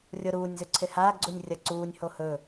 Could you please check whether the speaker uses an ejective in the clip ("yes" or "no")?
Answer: no